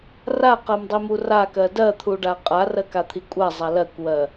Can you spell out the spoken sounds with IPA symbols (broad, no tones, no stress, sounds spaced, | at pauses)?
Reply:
r a q ɜ m dˤ i m u r a k ɜ d ɜ t̪ʰ u ɖ a qʼ a r ɜ k a t̪ʰ i kʷʼ a zˤ a l ɜ kʷ w ɜ